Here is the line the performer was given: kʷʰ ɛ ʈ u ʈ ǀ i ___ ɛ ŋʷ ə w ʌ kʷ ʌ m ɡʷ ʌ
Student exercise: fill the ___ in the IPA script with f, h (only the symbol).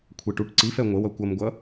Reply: f